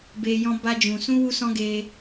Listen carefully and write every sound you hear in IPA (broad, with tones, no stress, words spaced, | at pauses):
be˧ jɔ̃˧ba˧d͡ʒũ˨ sũ˧wu˧sɔ̃˧ ɡe˧